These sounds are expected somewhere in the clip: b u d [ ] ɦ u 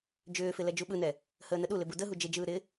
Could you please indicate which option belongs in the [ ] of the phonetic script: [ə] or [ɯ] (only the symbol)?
ə